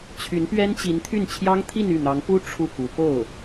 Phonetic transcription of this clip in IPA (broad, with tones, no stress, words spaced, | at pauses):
t͡ɕʰy˧˥npɥɛ˥nt͡ɕi˧˥nt̪ʰy˥˩n t͡ɕʰjɑ˥ŋ t̪ʰi˥˧ny˥˩n̪ɑ˧˥ŋ pu˥ ʈ͡ʂʰu˥˩ku˧˥ po˥˩ʊ̯